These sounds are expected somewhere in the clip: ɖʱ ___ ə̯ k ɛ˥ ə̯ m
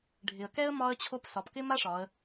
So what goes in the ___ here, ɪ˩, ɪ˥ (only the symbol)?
ɪ˩